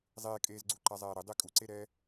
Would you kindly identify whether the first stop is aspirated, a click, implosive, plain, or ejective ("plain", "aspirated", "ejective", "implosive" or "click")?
ejective